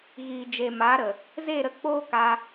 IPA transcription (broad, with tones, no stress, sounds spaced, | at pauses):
ɣ iː˨ d͡ʒ e˨ m aː˨˦ ɾ ə˨ | z e˦˨ ɾ ə˧ k͡p oː˦ k a˧